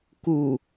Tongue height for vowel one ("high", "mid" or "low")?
high